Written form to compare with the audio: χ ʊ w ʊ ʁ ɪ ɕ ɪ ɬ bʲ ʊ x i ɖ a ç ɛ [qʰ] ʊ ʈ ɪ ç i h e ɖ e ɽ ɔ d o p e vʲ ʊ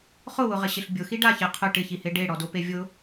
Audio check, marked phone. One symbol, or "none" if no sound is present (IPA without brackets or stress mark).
qʰ